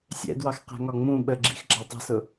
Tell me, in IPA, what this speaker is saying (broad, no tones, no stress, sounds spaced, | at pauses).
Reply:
sʲ ɛ̰ d w ɑ x q æ̤ ŋ ɒ ŋ͡m ũ ɓ ə ɡ͡ǁ ḭ x ɡ͡ǁ ɑ tˤ ə̤ s ʊ